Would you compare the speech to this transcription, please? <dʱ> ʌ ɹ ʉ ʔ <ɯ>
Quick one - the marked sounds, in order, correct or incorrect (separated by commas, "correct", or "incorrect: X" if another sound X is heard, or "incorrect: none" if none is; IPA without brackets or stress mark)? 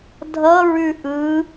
correct, correct